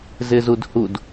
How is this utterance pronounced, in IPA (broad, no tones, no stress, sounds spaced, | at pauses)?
z ɪ z u d h u d